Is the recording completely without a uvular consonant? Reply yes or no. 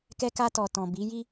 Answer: yes